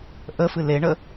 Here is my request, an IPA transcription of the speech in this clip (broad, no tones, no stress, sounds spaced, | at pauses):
ʔ ə f ɨ l e ɳ ə